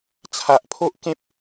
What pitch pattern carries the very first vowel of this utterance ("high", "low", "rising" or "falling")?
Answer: low